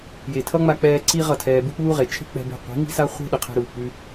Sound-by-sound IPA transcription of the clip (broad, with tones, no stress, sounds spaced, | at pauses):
j e˨ tʰ ʌ˦ ŋ͡m a˧ k͡p ɛː˧ ǀ i˦ ʁ ʌ˦˨ tʰ ɛː˧ b u˦ k͡p uː˦ ʁ e˨ t͡ʃʰ e̤˦ k͡p ɛ̤˧ b e̤˧ qʷ i̤˨˦ ŋ i̤˦ s a˦ χʷ e̤˦ ɗ ə˨ qʰ ɛ̤˦ ɾ uː˨ k͡p ʉ˧